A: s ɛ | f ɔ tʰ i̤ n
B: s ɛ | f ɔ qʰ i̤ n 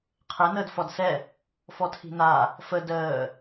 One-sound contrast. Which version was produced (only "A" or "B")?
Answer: A